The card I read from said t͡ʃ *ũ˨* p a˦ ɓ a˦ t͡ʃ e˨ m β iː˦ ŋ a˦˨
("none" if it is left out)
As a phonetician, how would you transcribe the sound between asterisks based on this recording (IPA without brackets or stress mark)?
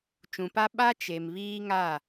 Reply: ũ˨